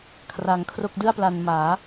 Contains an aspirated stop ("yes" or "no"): yes